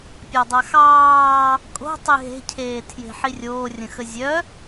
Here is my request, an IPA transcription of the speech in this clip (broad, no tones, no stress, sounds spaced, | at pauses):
pʲ ɑ dˤ a x ɑː | kʼ o̤ tˤ i ɦ e̤ cʰ eː tʰ j e̤ ħ i rʲ oː rʲ ə̃ x ə zʲ œ